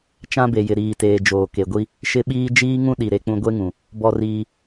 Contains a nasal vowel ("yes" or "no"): yes